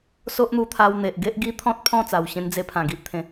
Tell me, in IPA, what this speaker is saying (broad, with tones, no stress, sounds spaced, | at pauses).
s o˦ ʔ n̪ u˧ t̪ʰ a˧ w n̪ e˨ ʔ ɡ e˦ ʔ ɡ i˦ t̪ʰ ɔ̃˦ t̚ pʰ ɔ̃˥˧ t͡s a˨˩ w ɕ ẽ˧ n d͡z e˧ pʰ ã˨˩ ɡ i˦ ʔ t̪ʰ ẽ˨˦